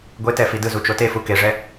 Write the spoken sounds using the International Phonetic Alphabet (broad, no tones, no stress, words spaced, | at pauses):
ɡʷetɛ fidɯzu t͡ʃotefu keʐɛ